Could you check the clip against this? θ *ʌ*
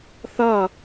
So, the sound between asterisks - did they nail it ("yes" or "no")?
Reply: yes